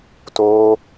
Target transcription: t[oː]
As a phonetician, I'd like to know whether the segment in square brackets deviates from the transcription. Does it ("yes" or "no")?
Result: no